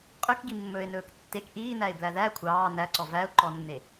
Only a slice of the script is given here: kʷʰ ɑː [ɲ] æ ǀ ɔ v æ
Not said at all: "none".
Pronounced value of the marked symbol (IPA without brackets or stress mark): n